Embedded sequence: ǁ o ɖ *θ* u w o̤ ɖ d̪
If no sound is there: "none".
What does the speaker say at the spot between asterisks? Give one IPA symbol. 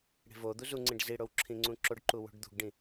ǃ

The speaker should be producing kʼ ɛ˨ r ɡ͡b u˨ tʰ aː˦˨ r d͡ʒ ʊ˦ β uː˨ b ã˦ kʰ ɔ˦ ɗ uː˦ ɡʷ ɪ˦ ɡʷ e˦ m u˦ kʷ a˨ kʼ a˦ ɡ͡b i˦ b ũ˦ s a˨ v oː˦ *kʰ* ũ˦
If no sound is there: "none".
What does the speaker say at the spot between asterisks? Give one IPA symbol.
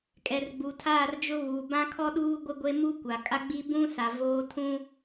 tʰ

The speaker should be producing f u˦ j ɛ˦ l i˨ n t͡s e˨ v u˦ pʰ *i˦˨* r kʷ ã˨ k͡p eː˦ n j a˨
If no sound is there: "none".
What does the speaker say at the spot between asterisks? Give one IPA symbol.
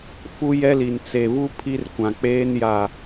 i˦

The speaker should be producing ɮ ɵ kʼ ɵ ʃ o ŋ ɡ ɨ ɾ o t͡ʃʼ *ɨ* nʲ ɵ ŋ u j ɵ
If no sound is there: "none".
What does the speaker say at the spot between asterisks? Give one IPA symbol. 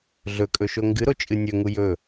ɨ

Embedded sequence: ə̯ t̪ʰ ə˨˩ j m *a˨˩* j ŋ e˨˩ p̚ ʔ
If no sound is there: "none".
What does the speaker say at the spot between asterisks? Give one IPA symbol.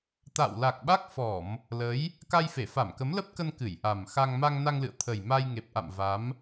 a˧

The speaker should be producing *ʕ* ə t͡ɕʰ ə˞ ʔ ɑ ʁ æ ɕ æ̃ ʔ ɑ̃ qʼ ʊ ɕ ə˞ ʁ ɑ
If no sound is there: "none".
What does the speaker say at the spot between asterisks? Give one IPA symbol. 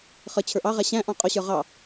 χ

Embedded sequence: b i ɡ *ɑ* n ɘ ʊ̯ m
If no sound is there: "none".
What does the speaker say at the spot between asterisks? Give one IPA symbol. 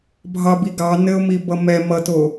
ɑ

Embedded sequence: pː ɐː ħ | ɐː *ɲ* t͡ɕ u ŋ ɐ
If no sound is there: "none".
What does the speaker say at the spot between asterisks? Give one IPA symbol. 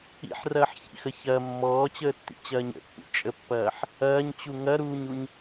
ɲ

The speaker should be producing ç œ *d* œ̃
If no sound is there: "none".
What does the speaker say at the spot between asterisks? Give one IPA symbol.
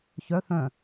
θ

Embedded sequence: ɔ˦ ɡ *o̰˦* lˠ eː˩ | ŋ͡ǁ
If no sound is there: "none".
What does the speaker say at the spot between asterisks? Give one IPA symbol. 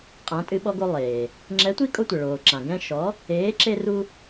o˦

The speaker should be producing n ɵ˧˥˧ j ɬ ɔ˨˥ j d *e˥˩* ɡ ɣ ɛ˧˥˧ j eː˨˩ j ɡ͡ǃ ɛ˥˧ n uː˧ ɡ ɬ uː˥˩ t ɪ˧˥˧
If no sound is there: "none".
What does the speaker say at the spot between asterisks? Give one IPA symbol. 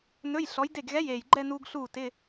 e˥˩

